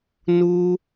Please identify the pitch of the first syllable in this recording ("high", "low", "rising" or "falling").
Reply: high